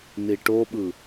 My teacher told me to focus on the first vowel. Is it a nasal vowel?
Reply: no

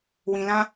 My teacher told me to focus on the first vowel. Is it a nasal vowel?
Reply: yes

